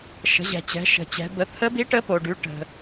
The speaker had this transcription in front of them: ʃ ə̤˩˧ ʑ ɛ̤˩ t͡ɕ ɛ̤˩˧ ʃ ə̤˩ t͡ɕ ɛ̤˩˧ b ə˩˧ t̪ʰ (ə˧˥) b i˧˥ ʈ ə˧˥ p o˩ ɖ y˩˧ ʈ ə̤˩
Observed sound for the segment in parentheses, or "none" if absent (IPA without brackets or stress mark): ə˧˥